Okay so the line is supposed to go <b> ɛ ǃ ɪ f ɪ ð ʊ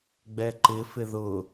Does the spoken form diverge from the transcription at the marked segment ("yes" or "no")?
yes